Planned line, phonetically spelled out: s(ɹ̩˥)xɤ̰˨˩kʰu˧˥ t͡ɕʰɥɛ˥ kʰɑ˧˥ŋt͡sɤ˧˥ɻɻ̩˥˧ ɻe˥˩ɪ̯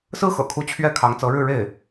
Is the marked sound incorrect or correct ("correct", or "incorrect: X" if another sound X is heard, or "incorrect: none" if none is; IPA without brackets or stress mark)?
correct